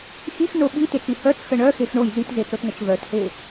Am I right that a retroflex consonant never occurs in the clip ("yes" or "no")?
no